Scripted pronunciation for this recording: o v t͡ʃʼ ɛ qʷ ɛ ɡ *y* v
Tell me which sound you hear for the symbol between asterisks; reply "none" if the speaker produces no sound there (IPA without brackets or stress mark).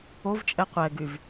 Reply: y